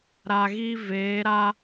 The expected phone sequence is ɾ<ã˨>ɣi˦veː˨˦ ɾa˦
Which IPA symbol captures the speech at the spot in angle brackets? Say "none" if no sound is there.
a˨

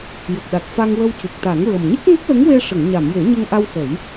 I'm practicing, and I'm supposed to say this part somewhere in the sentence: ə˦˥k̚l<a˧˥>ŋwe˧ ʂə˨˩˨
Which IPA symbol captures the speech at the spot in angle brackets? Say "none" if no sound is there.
ə˧˥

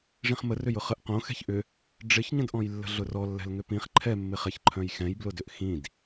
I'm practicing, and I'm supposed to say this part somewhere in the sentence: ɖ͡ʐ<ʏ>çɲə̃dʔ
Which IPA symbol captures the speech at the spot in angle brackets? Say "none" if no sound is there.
ɪ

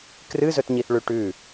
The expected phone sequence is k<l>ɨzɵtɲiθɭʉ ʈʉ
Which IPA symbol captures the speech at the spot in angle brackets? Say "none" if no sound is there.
r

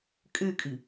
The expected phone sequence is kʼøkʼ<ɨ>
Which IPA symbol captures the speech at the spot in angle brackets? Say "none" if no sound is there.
ɨ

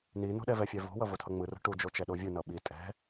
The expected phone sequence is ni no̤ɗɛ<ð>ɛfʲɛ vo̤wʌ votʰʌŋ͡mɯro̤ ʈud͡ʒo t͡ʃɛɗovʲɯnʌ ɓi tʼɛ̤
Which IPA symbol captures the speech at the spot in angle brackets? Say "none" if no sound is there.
v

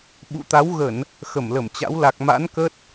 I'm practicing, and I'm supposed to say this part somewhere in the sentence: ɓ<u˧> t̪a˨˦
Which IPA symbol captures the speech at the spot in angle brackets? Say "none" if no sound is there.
ṵ˧˨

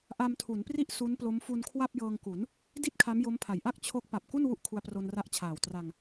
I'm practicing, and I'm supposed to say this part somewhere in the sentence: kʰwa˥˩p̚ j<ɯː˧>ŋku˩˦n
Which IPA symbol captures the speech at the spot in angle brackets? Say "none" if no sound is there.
ɤː˧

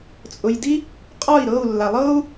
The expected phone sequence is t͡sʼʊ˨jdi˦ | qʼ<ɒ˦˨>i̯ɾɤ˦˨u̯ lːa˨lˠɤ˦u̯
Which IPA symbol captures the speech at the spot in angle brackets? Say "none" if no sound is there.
ɒ˦˨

